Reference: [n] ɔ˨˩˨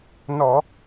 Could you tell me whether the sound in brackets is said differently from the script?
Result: no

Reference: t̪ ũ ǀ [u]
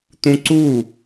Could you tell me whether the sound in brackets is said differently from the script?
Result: no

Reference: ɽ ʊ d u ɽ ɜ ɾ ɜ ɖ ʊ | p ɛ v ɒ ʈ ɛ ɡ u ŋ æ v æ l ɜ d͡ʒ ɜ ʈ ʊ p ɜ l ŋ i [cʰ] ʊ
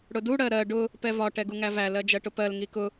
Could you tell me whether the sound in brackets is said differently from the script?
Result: yes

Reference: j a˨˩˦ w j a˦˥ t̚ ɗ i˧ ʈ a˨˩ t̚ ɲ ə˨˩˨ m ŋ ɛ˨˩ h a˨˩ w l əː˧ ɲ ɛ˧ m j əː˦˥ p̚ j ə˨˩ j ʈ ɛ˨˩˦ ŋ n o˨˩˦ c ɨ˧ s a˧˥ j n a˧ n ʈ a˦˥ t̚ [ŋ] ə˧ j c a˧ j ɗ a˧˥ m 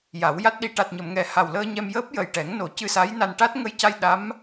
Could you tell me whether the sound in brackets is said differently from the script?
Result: no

